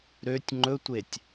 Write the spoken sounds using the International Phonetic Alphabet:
ɾøtʲ ŋ͡ǃɵtʷetʲ

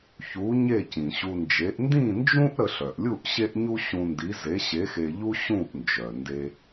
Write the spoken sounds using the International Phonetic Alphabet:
çu˨˥ ɲe˥˨cĩ˩ɕu˧nd͡ʒe˨˥ʔ ndĩ˥˨nd͡ʒũ˥ʔ ɾə˧ɬœ˩ʔlʲu˥˨ʔ ɕe˥ʔɲu˥ ɕũ˧ndi˨˥ ze˨˥ɕe˨˥xe˧ʎu˥ ɕũ˥˨ʔnd͡ʒœ˩nde˧

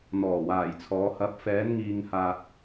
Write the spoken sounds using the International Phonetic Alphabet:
n̪ɔː˨˩waː˨˩jt͡sʰɔː˨˧ hɐ˨˥p̚fɛː˨˧n ŋiː˧ŋhaː˧t̚

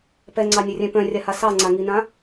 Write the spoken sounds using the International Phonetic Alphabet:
pɛŋ͡ǀɑnʲɨrʲɛ̃ pœ̃rʲaha sɑŋ͡ǀaŋinã

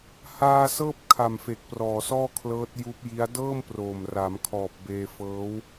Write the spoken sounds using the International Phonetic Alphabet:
haː˧ sɤː˥˩p̚kʰa˨˩mfe˨˩k̚ prɔː˨˩sɔː˥˩kʰlɤː˦˥t̚ juː˦˥p̚ji˦˥a̯ dɤː˥˩mproː˨˩m ra˩˦mkʰɔː˨˩p̚beː˧ fɤː˦˥w

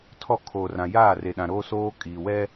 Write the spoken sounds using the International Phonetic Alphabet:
tʰɔ˦˨kʰoː˨rã˨ jaː˦˨re˨ɗã˨ɾoː˦ soː˦kʼiː˨wɛ˦

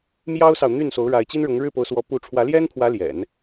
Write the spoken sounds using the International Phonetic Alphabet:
mjɑ˥ʊ̯sɑ˨ʊ̯ n̪y˥˩nso˧˥ʊ̯ ɻa˧˥ɪ̯t͡ɕi˥nɻʊ˧˥ŋ ɻɻ̩˥˩po˧˥ʊ̯swɔ˧˥ pu˥˩ ʈ͡ʂʰwä˧˥ljɛ˥npʰwä˧˥ ljɛ̰˨˩˦n

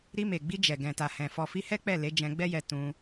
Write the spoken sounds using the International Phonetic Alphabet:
ɾi˧me˨ɡ͡bi˧ d͡ʒɛ˨ ɡɛ̃˨ta˨hɛ̃˨ fɔ˨fi˧hɛ˦k͡pɛ˦˨ le˨˦d͡ʒɛ̃˧ɡ͡bɛ˦jɛ˧ tũ˧

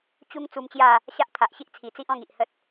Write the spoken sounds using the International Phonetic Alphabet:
t͡ɕu˧ŋ t͡su˧mt͡ɕja˥˧ | ɕa˦ʔt̪ʰa˨ʔɕi˦ʔ t͡sʰi˨˩t͡si˦ʔɔ̃˥˧ŋ i˨ʔhə˦t̚

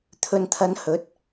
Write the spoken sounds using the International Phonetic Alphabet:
t̪ʰɵ˨nt̪ʰɐ˨˧n hɵ˨˥t̚

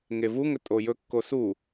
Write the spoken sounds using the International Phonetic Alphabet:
ŋevuŋɵ tʼojɵkːo su

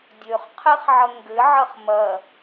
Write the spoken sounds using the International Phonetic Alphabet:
dʲøχqʰɛχʕɐ ŋɡɘʕɐχ mɐ

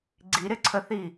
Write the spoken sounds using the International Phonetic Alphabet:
ɡ͡ǀiɾɪǀʰəθi

